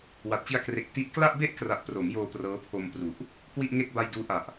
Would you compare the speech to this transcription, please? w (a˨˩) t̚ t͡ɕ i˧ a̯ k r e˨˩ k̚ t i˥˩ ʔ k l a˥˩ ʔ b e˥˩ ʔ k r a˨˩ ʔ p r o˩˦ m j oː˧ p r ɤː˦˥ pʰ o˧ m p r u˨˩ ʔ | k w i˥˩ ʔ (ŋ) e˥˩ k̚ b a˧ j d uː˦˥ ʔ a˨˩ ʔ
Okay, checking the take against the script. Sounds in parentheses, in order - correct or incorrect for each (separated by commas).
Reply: correct, correct